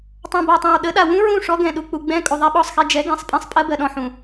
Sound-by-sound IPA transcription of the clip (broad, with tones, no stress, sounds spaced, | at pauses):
tˤ ã˨ b a˨ tˤ ã˨ w ɗ ə˨˦ ɗ a˨ w ũ˦ ɹ ũ˦˨ ʂ ɔ˦ ɡ ɛ̃˨ ɗ u˨ k͡p u˨ ɡ͡b ɛ̃˦ kʼ u˨ ðˤ ɛ˦ ɓ ɔ˦˨ sˤ x ɛ˦ d͡ʒ ɛ˨˦ ɡ ɛ̃˨ sˤ pʼ ɛ̃˦ sˤ pʼ ɜ˦ b ɜ˨ ɗ ɔ̃˨ ħ ũ˨